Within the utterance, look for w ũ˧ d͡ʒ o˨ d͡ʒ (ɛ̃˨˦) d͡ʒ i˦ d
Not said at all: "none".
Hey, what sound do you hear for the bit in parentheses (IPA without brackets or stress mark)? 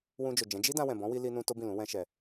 ɛ̃˨˦